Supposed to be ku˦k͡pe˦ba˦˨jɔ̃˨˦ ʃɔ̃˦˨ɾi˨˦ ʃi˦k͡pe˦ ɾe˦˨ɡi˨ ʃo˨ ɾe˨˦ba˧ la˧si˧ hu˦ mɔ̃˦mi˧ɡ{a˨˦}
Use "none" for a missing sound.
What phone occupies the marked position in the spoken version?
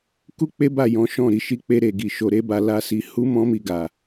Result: a˨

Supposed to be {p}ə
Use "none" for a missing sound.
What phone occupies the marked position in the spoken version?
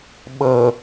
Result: ɓ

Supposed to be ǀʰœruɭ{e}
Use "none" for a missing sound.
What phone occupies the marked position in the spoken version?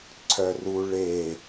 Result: e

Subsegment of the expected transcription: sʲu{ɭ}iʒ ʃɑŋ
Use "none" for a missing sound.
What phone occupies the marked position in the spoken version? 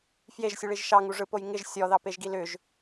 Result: ɭ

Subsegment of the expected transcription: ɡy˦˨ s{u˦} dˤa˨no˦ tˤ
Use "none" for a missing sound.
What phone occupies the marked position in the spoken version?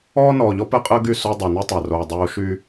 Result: o˦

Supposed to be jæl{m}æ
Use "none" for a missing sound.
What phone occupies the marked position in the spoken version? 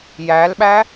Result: ɓ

